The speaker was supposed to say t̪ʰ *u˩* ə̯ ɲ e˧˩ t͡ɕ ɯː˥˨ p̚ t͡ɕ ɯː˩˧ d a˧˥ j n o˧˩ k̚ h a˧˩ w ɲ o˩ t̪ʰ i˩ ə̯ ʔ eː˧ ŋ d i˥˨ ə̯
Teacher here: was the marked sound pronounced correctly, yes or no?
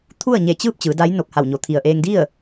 no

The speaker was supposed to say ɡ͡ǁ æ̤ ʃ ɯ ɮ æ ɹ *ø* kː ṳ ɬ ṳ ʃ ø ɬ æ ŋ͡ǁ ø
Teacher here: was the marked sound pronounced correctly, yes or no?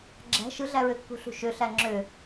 yes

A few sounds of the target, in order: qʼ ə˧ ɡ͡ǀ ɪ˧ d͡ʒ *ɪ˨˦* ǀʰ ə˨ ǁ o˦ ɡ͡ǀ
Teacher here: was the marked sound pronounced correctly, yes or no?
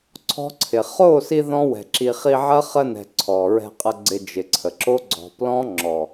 no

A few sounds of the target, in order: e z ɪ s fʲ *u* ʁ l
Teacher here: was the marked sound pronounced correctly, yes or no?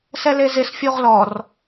yes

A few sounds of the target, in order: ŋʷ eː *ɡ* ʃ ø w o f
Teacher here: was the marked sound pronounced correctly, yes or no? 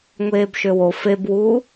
no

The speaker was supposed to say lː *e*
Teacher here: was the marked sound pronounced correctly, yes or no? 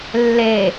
yes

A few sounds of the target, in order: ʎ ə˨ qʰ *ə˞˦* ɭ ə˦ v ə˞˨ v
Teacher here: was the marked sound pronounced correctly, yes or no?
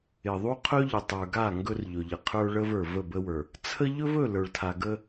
yes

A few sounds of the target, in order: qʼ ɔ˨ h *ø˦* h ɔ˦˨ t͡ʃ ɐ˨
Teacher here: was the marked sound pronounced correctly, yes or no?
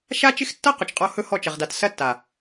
no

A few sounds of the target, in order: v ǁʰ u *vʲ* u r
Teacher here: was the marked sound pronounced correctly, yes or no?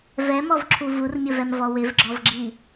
no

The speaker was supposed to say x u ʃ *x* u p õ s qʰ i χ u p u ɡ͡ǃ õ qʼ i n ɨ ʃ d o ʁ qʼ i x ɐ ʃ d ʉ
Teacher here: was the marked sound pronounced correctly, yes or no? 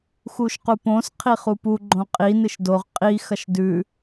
no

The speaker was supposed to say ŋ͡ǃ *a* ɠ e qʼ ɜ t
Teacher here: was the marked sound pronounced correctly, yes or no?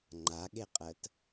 yes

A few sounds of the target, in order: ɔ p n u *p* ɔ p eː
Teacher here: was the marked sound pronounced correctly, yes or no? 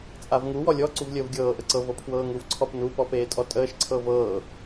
yes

